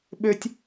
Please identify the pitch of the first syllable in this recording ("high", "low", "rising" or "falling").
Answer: high